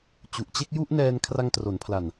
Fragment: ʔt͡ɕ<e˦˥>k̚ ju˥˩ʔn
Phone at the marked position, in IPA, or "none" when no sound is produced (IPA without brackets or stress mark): e˥˩